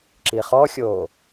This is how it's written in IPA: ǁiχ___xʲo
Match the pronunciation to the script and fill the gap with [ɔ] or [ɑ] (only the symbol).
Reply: ɔ